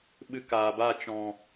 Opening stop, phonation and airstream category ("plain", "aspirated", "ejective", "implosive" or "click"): implosive